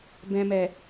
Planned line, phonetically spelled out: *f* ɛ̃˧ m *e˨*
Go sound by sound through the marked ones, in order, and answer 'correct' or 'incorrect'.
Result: incorrect: b, incorrect: ɛ˨

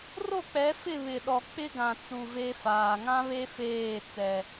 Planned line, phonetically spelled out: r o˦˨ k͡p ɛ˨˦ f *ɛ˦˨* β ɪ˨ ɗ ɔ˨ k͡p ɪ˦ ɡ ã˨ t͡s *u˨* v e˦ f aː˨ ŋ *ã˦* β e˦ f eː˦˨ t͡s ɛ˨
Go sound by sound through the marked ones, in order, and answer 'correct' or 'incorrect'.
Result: incorrect: ɪ˦˨, correct, correct

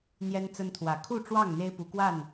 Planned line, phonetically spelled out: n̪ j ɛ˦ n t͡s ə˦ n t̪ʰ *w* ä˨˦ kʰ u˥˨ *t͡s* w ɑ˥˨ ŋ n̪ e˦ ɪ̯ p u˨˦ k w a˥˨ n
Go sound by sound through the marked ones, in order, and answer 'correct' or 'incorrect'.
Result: correct, incorrect: ʈ͡ʂ

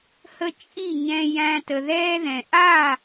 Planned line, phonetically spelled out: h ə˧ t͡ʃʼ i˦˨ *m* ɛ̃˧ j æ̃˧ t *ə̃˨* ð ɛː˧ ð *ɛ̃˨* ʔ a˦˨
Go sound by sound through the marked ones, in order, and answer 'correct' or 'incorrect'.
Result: incorrect: ɲ, incorrect: ə˨, correct

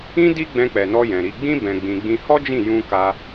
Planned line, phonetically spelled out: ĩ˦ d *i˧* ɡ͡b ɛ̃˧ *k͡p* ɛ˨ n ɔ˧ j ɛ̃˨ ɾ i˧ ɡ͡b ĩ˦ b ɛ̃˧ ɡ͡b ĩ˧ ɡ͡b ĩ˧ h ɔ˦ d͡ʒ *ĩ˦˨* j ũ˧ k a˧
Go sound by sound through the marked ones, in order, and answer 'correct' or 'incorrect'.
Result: incorrect: i˦, correct, correct

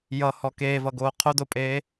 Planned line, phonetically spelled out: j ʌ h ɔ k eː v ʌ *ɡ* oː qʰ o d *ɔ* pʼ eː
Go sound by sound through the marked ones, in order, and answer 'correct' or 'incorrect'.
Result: correct, incorrect: o

